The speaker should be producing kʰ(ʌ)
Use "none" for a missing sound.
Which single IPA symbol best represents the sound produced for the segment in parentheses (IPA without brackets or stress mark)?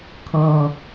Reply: ʌ